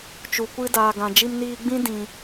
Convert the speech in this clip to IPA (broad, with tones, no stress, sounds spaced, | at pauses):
t͡ʃ u˨ kʷ ɨ˧ d aː˨ ɡ ã˨ d͡ʒ i˧ m n iː˧ ɡ͡b ĩ˦ d ĩ˨